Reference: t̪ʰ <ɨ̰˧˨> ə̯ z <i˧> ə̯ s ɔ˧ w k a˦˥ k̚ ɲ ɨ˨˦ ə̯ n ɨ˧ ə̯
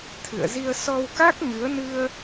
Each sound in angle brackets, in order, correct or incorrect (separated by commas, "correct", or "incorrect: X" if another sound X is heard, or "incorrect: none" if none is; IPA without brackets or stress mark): correct, correct